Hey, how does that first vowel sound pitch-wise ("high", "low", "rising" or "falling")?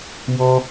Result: high